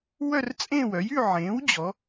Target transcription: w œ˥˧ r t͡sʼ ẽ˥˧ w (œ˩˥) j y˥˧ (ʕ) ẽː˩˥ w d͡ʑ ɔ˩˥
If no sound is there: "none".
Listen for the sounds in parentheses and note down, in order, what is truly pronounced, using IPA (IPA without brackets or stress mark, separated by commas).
œ˩˥, ʕ